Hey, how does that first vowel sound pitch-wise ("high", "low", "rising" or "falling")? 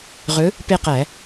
rising